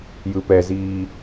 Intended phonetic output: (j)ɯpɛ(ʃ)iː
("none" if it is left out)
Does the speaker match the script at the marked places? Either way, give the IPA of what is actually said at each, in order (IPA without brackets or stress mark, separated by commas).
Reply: j, z